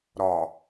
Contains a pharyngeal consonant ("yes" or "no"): no